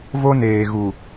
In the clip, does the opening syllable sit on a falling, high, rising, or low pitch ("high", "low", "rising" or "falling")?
high